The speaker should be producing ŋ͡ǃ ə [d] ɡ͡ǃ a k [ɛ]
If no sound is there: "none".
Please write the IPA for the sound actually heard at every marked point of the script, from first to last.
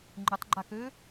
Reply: tˤ, ø

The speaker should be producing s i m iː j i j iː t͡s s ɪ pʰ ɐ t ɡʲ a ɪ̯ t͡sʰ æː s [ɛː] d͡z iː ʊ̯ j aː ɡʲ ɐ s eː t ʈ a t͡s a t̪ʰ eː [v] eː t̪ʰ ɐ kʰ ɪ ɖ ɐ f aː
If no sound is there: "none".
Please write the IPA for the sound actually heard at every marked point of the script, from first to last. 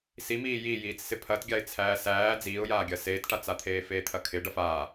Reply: æː, f

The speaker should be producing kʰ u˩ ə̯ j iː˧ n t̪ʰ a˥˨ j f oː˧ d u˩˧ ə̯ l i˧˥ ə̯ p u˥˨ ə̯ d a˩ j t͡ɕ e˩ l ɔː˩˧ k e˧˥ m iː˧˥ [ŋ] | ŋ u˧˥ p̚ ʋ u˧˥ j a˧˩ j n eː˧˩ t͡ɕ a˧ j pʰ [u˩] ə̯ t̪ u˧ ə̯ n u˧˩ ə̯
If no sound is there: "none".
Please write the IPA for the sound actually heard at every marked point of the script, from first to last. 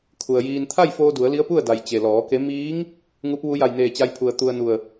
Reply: ŋ, u˩

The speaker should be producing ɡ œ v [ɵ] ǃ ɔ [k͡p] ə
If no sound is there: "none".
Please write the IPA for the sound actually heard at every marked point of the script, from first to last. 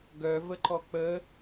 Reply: ə, k͡p

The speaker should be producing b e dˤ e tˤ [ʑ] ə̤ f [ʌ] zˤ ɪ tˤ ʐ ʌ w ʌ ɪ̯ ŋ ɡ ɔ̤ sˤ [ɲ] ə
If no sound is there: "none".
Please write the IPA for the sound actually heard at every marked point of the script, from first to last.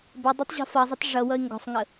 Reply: ʑ, ʌ, ŋ

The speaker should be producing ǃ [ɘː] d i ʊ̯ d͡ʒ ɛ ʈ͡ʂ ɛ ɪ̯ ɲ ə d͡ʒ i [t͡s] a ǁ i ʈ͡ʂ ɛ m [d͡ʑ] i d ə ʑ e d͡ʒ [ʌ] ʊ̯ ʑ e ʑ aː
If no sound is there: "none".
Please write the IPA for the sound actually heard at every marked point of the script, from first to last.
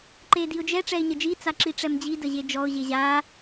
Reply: eː, t͡s, d͡ʑ, ɔ

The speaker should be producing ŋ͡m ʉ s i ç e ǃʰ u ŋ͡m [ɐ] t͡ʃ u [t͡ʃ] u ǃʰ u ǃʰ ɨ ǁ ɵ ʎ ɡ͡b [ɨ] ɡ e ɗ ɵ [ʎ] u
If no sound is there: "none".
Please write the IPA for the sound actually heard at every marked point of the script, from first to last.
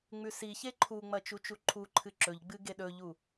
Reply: ɐ, t͡ʃ, ɨ, ʎ

